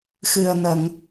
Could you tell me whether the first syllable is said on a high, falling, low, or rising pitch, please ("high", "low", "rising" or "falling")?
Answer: low